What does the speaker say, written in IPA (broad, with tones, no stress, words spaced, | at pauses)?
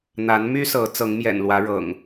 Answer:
n̪a˨˦nmy˦sɤ˨˦ t͡sɤ˨˦ŋmjɛ̰˨˩nlwä˨˦ ɻɤ̰˨˩ŋ